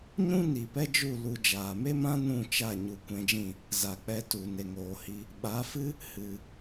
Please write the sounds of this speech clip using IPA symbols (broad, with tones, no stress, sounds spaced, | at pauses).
ɲ ũ˦ n i˨ p ɛ˦ d͡ʒ u˦˨ l u˧ d͡ʒ aː˨ m e˦ m ã˦ n ũ˦˨ t͡ʃ a˦˨ ɲ u˧ kʷ ɛ̃˧ d͡ʒ ĩ˦˨ | z a˨ k͡p ɛ˧ t u˨ n e˨ ŋ oː˨ h i˧ | ɓ a˨˦ f ɨ˦ | h ɨ˨